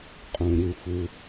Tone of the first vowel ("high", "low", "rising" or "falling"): low